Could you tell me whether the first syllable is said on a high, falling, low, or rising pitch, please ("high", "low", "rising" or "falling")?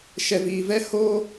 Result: low